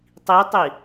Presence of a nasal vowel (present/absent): absent